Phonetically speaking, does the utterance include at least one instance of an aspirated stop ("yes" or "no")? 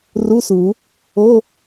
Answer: no